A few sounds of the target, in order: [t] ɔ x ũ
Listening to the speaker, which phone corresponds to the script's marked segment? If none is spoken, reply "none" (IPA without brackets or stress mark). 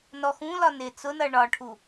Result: n